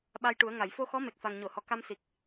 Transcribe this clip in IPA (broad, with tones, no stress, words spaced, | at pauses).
ɓa˧jʈu˨˩˦ə̯ŋa˨˩˨j fo˧xɔ˧˥ me˨˩k̚fa˨˩ŋɲo˨˩˨hɔ˨˩ ka˧msi˨˩k̚